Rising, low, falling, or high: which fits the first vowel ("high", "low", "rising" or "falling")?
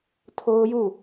high